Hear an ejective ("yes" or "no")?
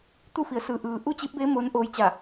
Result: no